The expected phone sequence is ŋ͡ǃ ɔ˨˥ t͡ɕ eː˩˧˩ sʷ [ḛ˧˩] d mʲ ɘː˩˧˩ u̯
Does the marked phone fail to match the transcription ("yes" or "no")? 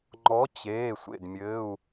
no